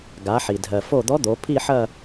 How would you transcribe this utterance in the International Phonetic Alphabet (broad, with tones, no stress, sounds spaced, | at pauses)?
ɡ a˩˧ ħ i˩ dʱ ɜ˩ f o˧˩ d̪ ɔ˧˥ d̪ o˩˧ pʰ i˥˧ ħ ɐ˥˧